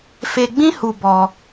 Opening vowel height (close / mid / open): mid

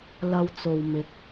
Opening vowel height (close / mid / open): open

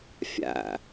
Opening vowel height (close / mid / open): open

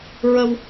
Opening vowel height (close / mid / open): mid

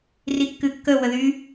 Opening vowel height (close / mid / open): close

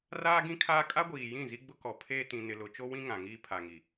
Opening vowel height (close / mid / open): open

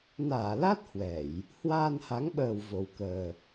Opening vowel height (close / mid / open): open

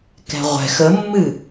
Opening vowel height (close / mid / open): mid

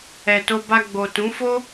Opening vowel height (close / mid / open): mid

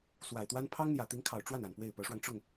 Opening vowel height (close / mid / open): open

